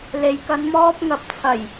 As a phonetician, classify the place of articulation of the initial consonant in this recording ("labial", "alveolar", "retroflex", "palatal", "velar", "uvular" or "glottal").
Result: alveolar